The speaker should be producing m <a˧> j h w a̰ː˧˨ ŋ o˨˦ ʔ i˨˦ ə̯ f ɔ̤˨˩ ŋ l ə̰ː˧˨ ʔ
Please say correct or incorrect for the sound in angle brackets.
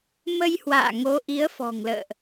incorrect: ə˧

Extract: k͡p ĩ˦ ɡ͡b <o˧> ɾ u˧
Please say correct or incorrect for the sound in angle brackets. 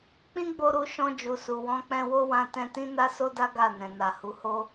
correct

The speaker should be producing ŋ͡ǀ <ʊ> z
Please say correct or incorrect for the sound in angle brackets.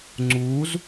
incorrect: u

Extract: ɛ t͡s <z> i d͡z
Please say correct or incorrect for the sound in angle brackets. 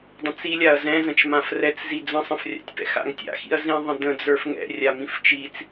correct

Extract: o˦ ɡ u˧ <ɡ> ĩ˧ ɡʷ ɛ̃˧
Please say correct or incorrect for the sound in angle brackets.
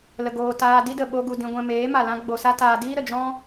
incorrect: d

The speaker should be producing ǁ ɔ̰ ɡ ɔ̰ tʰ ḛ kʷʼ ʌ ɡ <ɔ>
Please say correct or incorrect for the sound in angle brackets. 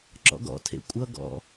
incorrect: ɔ̰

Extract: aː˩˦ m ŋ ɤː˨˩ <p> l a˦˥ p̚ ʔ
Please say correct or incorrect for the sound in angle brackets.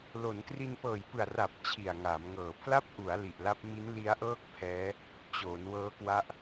incorrect: pʰ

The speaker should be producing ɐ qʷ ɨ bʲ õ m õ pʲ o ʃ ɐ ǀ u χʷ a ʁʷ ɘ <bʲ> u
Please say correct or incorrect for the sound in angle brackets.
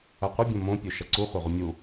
incorrect: mʲ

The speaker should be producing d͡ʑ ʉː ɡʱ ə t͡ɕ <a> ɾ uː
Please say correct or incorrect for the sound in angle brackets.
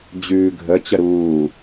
incorrect: ə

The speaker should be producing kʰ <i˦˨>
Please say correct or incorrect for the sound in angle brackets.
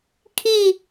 correct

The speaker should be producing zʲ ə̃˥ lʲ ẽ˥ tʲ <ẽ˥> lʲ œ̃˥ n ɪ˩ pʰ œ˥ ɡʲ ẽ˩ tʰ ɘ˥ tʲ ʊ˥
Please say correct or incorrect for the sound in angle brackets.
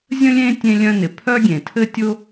correct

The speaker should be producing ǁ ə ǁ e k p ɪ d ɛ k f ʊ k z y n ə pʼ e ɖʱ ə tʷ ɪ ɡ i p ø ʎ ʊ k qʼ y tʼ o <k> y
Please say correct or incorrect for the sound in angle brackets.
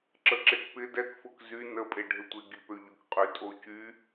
incorrect: c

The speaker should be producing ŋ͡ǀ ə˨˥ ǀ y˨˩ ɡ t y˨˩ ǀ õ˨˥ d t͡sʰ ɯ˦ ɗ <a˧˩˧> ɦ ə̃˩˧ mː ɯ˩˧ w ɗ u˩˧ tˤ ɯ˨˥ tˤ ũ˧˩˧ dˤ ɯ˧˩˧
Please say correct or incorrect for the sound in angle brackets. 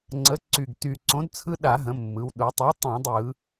correct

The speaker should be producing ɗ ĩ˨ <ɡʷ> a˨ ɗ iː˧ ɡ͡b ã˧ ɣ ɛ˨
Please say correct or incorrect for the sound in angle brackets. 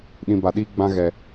incorrect: b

